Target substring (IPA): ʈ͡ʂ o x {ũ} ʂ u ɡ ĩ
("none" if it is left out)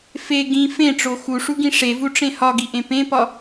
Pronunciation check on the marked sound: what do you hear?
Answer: u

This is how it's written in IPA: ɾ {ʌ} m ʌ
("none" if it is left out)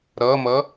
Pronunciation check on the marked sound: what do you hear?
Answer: ʌ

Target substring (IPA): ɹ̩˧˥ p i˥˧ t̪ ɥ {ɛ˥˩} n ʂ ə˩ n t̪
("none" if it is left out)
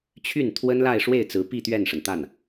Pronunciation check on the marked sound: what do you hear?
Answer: ɛ˥˩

